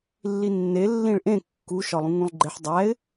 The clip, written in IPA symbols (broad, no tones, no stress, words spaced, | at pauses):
lːinːe lːĩɭʔẽ kːuʃɒlˠũ ŋũlˠɡ͡ǃeħ dˤæɪ̯